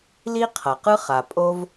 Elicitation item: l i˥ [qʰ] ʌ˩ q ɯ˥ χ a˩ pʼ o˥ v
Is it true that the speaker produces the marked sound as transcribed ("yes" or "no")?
yes